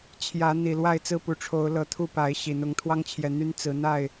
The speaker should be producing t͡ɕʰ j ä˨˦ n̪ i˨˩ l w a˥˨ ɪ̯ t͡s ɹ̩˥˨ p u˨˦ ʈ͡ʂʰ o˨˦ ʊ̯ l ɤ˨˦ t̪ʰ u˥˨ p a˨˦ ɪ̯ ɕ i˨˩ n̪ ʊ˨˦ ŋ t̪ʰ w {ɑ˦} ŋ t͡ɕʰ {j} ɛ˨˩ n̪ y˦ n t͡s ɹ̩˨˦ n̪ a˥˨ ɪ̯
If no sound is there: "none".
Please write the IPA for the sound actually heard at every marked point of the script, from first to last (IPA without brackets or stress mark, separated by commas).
ɑ˦, j